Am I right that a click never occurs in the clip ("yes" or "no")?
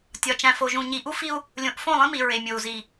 yes